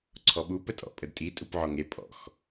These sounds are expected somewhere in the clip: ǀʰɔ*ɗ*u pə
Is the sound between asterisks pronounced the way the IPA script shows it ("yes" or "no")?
no